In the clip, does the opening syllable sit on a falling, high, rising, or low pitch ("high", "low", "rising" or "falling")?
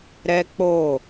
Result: high